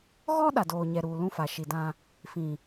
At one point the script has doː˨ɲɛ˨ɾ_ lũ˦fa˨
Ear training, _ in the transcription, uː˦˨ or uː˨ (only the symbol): uː˨